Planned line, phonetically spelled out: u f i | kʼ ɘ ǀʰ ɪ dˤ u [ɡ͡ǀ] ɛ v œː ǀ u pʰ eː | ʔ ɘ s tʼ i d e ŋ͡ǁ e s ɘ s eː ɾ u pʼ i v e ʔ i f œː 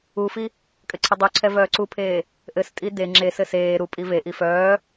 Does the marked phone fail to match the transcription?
yes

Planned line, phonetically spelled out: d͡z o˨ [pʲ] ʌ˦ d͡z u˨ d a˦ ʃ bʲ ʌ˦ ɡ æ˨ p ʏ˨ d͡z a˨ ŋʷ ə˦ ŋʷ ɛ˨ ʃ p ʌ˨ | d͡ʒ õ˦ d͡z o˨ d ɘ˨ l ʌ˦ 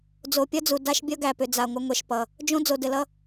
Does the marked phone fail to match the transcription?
no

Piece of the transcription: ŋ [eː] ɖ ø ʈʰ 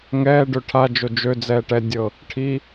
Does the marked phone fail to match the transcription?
yes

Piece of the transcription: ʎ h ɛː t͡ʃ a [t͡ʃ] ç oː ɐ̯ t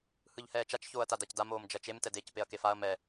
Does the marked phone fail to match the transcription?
no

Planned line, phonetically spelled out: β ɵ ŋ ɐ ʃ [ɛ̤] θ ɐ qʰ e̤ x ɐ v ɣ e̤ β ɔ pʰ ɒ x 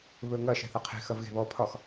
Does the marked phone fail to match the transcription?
no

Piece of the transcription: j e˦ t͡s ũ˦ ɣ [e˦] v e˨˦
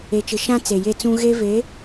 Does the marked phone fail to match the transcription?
no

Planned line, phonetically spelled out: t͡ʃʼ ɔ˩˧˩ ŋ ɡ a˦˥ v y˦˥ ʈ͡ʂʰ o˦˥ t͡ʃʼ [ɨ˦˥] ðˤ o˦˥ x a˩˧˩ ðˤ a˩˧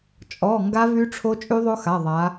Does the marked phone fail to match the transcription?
yes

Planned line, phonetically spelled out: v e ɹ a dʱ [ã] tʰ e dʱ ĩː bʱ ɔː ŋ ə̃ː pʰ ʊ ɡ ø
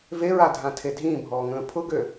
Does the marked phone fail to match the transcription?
no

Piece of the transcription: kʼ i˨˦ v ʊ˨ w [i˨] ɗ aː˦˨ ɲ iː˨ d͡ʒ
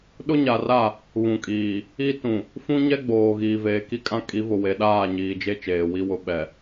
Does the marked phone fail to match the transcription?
yes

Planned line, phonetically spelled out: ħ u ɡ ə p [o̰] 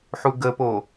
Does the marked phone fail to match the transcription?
yes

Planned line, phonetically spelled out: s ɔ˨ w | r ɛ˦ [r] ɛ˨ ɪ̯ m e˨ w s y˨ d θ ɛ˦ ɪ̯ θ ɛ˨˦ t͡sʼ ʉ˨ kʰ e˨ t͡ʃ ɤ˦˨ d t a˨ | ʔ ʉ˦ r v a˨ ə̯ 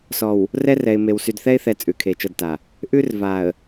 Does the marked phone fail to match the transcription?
no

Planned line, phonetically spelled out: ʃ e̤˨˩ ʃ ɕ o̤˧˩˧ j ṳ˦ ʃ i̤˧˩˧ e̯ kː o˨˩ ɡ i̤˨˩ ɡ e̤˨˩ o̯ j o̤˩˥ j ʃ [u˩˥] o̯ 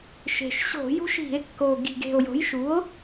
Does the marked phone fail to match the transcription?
no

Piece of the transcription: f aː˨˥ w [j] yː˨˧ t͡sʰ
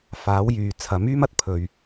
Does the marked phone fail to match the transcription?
no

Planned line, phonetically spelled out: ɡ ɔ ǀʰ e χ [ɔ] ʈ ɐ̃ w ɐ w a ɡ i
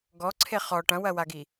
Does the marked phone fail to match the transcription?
no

